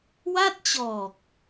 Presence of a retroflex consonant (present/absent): absent